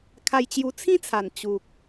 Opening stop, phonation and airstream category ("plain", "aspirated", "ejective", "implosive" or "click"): aspirated